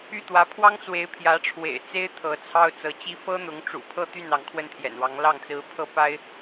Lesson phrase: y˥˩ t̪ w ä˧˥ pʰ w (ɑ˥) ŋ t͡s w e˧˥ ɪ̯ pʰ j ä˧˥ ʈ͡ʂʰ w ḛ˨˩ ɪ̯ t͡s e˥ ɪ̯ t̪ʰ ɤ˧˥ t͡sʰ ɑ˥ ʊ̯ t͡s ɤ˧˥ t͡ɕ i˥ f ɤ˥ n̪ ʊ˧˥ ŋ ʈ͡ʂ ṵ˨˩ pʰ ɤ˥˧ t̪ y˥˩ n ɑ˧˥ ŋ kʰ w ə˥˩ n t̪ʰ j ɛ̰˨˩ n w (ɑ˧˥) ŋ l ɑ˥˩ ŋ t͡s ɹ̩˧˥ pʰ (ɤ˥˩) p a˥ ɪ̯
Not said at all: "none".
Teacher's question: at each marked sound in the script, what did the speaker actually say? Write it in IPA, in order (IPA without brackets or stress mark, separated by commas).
ɑ˥, ɑ˧˥, ɤ˥˩